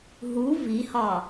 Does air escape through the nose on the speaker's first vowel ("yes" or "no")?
no